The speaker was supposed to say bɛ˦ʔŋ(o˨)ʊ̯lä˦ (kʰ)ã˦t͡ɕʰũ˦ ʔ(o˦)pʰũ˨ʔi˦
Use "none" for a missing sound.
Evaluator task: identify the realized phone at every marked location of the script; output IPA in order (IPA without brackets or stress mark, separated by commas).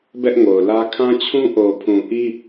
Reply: o˨, kʰ, o˨